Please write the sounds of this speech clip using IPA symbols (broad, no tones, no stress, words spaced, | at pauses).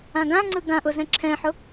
ãɡãŋ͡ǀɯ ɡãʔʊ zɛ̃ǁʰɛ̃ħʊ